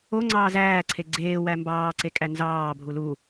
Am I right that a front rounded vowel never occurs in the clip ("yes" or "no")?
yes